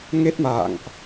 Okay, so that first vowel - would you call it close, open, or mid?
mid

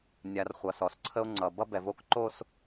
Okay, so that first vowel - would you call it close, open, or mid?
open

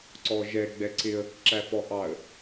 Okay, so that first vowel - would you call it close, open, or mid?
mid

